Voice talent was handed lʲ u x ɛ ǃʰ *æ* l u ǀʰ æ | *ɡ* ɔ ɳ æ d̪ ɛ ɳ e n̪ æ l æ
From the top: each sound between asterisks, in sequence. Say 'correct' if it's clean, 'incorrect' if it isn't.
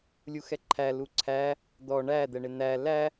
correct, incorrect

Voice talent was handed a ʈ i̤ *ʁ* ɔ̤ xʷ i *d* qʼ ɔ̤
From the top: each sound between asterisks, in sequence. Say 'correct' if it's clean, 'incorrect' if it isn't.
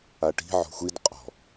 incorrect, correct

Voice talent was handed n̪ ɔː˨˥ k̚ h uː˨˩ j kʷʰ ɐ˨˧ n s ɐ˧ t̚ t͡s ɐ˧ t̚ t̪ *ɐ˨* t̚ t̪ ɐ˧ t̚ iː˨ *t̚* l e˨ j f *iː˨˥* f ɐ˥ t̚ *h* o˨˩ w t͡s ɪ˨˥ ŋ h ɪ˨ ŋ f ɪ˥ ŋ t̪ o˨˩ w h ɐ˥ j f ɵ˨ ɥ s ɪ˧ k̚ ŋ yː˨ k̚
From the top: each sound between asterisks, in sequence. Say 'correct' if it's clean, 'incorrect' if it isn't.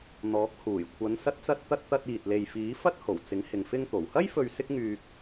incorrect, correct, correct, correct

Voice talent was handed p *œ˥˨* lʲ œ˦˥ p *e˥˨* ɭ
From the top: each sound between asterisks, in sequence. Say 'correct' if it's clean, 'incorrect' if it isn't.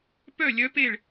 correct, correct

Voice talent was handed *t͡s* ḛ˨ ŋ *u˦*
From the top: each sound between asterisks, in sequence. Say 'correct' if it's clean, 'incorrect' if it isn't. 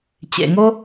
incorrect, incorrect

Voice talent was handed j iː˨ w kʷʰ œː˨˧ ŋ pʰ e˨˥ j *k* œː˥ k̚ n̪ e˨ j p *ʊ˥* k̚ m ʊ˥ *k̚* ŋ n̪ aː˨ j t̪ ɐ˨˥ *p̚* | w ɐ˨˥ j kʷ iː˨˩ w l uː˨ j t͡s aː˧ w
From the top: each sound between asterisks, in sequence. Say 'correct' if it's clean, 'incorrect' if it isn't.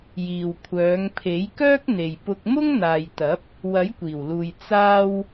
correct, incorrect, incorrect, correct

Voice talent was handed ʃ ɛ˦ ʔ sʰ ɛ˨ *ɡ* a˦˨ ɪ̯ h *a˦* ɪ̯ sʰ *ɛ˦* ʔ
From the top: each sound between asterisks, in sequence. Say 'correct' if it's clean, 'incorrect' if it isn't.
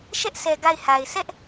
correct, incorrect, correct

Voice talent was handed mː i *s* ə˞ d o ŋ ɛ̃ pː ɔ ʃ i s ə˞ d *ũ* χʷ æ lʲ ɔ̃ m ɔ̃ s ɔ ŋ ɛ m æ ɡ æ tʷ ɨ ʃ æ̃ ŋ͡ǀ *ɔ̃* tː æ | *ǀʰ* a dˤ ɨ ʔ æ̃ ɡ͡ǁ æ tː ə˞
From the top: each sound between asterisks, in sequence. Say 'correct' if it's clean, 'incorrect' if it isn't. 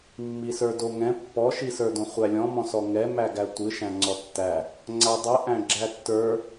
correct, incorrect, incorrect, incorrect

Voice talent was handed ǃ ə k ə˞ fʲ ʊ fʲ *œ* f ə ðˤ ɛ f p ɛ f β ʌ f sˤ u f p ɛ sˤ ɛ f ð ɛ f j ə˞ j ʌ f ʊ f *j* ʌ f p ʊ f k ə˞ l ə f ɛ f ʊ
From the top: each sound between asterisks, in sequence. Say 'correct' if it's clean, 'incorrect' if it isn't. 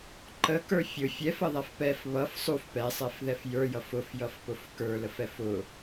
incorrect, correct

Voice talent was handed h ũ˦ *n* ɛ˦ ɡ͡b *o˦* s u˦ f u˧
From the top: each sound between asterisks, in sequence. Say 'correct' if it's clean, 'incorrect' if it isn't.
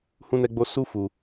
correct, correct

